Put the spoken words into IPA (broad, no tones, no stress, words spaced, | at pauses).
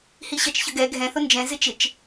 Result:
hiɕɜt͡ʃçəɡɛ ɡʱɛ̃θʊ nd͡ʒɛ̃zɪ t͡ʃɪt͡ʃ